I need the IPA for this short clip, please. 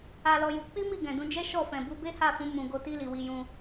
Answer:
a˧ l ɔ˧ j u˧ k͡p i˦ m i˦˨ ɡ ɛ̃˨ d ũ˧ d͡ʒ ɛ˦ ʃ ɔ˦˨ f ɛ̃˨ b u˨˦ b e˦ h a˦˨ f ũ˨˦ m ũ˧ ɡ o˧ t i˦ l i˧ w i˧ j ũ˧

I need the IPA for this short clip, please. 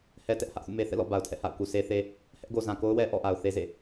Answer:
h ɛ˦ t ɛ˦ ʔ h ä˦ ʔ θ ṵ˦˨ m e˦ θ ɛ̰˦˨ l ɔ̰˦˨ b a˨ ʊ̯ tʰ ɛ̰˦˨ h a̰˦˨ ʊ̯ k u˨ s e˦ θ e˦ | h ɛ˦ ʔ ɡ o˨ z ã˨ k o˦ ʊ̯ w ɛ˦ ʔ ɔ̰˦˨ ʔ a˨ ʊ̯ θ e˦ z ḛ˦˨

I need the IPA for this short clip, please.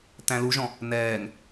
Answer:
t æ̃ l u ʒ ɔ̃ | n ɛː ŋ

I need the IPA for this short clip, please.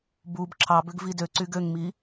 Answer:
b u b ǁʰ ɑ b ø ɡ v i d ø ǀ y ɡ ø ŋ m i

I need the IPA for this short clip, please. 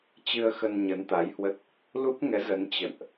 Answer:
t͡ɕ ɨ˧ ə̯ x ə˧ n ɲ ə˨˦ n t̪ a˨˦ j h w ə˦˥ t̚ | l u˦˥ p̚ ŋ ɛ˨˦ z ə˨˦ n t͡ɕ ə̰˧˨ n ʔ

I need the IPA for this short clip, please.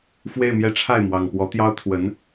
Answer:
f w e˥˧ ɪ̯ m j ɛ˥˧ ʈ͡ʂʰ a˥˩ ɪ̯ m w ɑ˨˩ ŋ p w ɔ˧˥ t̪ j ɑ˥ ʊ̯ t̪ʰ w ə˧˥ n

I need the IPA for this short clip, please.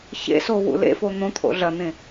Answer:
ç ḛ s o w ṵ l ḛ f o n̪ õ t̪ʰ o̰ ɮ ɐ n̪ ẽ

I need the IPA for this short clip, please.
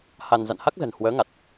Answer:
h a˧ n z a̰˧˨ n h a˦˥ k̚ z ə̤˨˩ n h w əː˨˦ ŋ a˨˩ t̚

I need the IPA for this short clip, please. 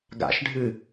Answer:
ɡ a̰ ʃ ɖʱ ɨ

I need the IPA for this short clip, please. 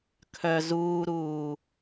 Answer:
kʰ œ z uː ɾ uː

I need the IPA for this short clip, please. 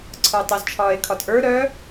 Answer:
ǀʰ ə˞ tˤ ə z t͡ʃʰ ɒː e̯ kʰ ɒ t ʔ ə˞ ɾ œ

